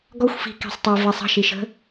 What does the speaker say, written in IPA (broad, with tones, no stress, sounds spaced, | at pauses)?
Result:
ɡ ɔ˦ xʷ f i̤˨˦ k i̤˨ sˤ tˤ i˨ v ɛ˨ sˤ ə̤˦˨ ʃ i˨ ʃ ə̤˦